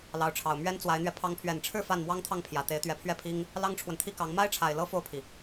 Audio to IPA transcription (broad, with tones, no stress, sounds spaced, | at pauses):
l ɑ˧˥ ʊ̯ ʈ͡ʂʰ ɑ˨˩ ʊ̯ m ɥ ɛ˥ n t͡s w a˧˥ ɪ̯ n̪ ɥ ɛ˧ pʰ ɑ˧˥ ŋ pʰ ɥ ɛ˨˩ n ʈ͡ʂʰ ɻ̩˥˧ f a˥˩ n m w ɑ˥ ŋ t̪ʰ ɑ˥˩ ŋ pʰ j ä˨˩ t̪ e˧˥ ɪ̯ t̪ ɥ ɛ˧˥ pʰ ɥ ɛ˥˩ pʰ i˥ ŋ | l ɑ˥ ŋ ʈ͡ʂʰ w ə˨ n t̪ʰ i˥ k ɑ˧˥ ŋ m a˥ ɪ̯ ʈ͡ʂʰ a˨˩ ɪ̯ l ɤ˥ f o˥˩ ʊ̯ pʰ i˩